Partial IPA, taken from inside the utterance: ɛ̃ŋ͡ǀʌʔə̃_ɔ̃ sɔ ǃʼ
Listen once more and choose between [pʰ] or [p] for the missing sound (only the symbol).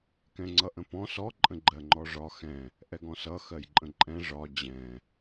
p